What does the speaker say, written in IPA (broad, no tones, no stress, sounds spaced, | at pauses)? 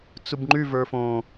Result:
t͡s u b ŋ͡ǃ y v ə˞ f õ